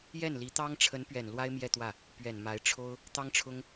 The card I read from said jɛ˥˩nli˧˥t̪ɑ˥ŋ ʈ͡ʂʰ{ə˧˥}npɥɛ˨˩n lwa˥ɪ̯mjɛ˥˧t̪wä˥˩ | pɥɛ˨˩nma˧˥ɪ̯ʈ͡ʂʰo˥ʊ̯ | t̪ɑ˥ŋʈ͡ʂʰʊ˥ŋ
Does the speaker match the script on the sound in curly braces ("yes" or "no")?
yes